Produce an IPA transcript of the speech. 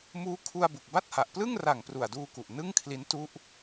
m uː˦˥ kʰ u˧ a̯ b u˨˩ k̚ b a˥˩ t̚ h a˨˩ ʔ p l ɯ˥˩ ŋ r a˨˩ ŋ p r u˨˩ a̯ d uː˧ k u˨˩ ʔ n ɯ˥˩ ŋ kʰ l i˦˥ n t u˥˩ ʔ

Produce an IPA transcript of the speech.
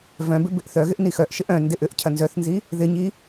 v œ̃ b ɪ b ɪ ʔ θ œ ɣ ɪ ʔ n i x œ ʔ ʃ ɪ ʔ œ̃ n d ɪ ʔ ʏ ʔ cʰ ɐ n z œ θ n z i | ð ɪ ɲ i

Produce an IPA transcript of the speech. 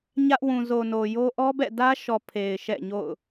ɲ ä˦ ʔ w ũ˨ z o˨ n o˨ j o˦ ʔ ɔ˦ b ɛ̰˦˨ d ä˦ ʃ ɔ˨ pʰ e˨ ɪ̯ ʃ ɛ̰˦˨ ɲ o̰˦˨ ʊ̯

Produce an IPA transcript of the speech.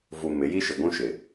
v u˨ m ɪ˨˦ j i˦ ʃ ɪ˨ ɡʷ ũ˦ ʃ ɪ˨

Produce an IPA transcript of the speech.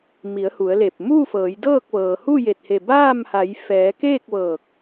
m i˩˧ ə̯ h u˩˧ ə̯ l e˧˩ p̚ m uː˥˨ f ɤː˩˧ j d ɤː˥˨ k̚ ʋ ɤː˩ h u˥˨ j e˧˩ t̚ h e˧˩ b aː˥˨ m h a˩˧ j f ɛː˩˧ k eː˥˨ k̚ ʋ ɤː˧˩ k̚

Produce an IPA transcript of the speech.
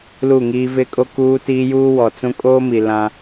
l u˦˨ ŋ iː˦ v ɪ˦ kʼ o˦ k uː˦ t iː˦ j uː˦ w ɔ˨ t͡s ũ˦ kʼ oː˦ m i˨ l ã˦

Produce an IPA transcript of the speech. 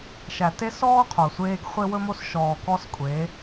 ʃ æ˨ t e˦ s ɔː˦ qʰ o˨ sʷ eː˦ ɡ χʷ e˦ w ɵ˦ m o˦ s ʃ ɔː˨ k ɔ˦ s kʷʼ eː˨˦

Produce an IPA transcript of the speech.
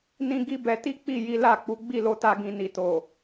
n ĩ˦ ɡ i˦ b ɛ˧ t i˦ k͡p i˦˨ j i˨˦ l a˦˨ k͡p u˨˦ ɡ͡b i˦˨ l o˧ t a˧ ɡ ĩ˨ n i˨ t o˨

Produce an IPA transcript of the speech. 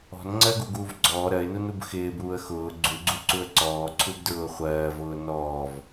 ɔ̤ n ŋ͡ǀ ɜ ɡ u ɡ uː v ɡ͡ǀ ɔː ɾ ɜ ɪ̯ n u n u b x ɪː b uː ə̯ x ʊː ɡ͡ǀ u ɡ͡ǀ u ǀ u ə̯ ǀ ɔː ǀʰ u b d ɹ ʊː χʷ ɜː v ʊː n ɔː v

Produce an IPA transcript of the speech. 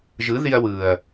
ʒ ɯ˨˦ ð i˧ ɐ̯ w ɯː˨ ɐ̯

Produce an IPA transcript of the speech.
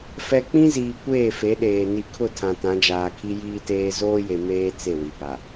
f ɛ˨ k͡p ĩ˦ z iː˨ kʷ eː˦˨ f e˨˦ ɗ eː˨ n i˨ kʰ ʊ˦˨ tʰ ã˨ t ã˨˦ d͡ʒ aː˨ kʰ i˦ j iː˦ t eː˦ z oː˦ j e˨ m eː˦ t͡s e˦˨ w i˨ b a˨

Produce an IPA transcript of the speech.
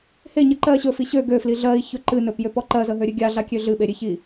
h e ɲ ɜ ǃ ɜ ɕ ɵ f i ɕ ø ɡ ø f l i ɮ ɜ i̯ ç ɵ ǃ ɨ n ɵ p j ø p ɔ ǃ ɜ z ə ɦ ø ɾʲ ɨ ɡʲ a ɮ a kʲ ø ɮ ɨ ɓ e ɾʲ e ç i

